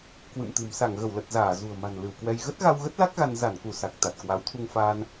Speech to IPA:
k w ɨ̰˧˨ m t̪ ɨ̤˨˩ m s a˧˩ ŋ ɣ ə˧˩ w l ə˨˩ t̚ z aː˧˩ z ṳ˨˩ ə̯ m a̤˨˩ n l ɨ˧˩ w k w ɛ˧ j ɣ ə˦˥ t̚ ɣ a˧ w ɣ ə˦˥ t̚ l a˦˥ k̚ ɣ a˧ n z a˧˩ n k u˧˩ s a˨˩ k̚ t̪ a˨˩ t̚ k w a˨˦ w t̪ʰ u˧ ŋ f aː˧ n

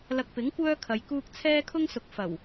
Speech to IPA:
l ɐ˧ k̚ p ɪ˨˥ ŋ kʷ œː˥ kʰ ɐ˨˧ j k uː˥ k̚ t͡sʰ ɛː˥ kʰ ʊ˥ ŋ s ʊ˨ k̚ f ɐ˨˩ w

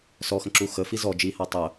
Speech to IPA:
s ɔ x ə̃ ǁ u x ə f i z ɔ d͡ʒ i h a tˤ ə

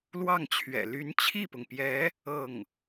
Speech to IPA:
l w ɑ˥˩ ŋ t͡ɕʰ ɥ ɛ̰˨˩ l y˧˥ n t͡ɕʰ i˥˩ p ʊ˩ ŋ p j ɛ˧˥ | ɤ˥˩ ŋ

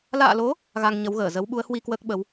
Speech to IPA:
l a̰ː˧˨ l o˨˦ | ɣ a˧ ŋ ɲ ə˨˦ w ɣ əː˧˩ z ə˨˦ w ɓ u˨˦ ə̯ h w i˧ k w əː˦˥ k̚ ɓ ə˨˦ w

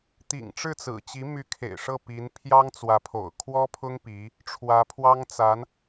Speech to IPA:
t̪ ḭ˨˩ ŋ ʈ͡ʂ ɻ̩˥˩ t͡s ɹ̩˨˩ t͡ɕ i˧˥ m y˧˥ kʰ ḛ˨˩ ɪ̯ ʂ ɤ˥˩ p i˧˥ n pʰ j ɑ˥ ŋ t͡s w ä˧˥ pʰ o̰˨˩ ʊ̯ kʰ w ɔ˥ pʰ ʊ˥ ŋ p i˧˥ | ʈ͡ʂʰ w ä˧˥ pʰ w ɑ˥ ŋ t͡s a˧˥ n

